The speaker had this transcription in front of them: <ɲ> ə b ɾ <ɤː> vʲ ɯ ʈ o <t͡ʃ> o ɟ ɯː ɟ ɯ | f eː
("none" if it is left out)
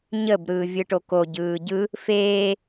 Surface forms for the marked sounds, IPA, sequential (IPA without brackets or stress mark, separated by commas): ɲ, ɯː, k